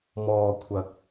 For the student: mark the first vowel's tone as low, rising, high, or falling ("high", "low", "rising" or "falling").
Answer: high